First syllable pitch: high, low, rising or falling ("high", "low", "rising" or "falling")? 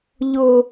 high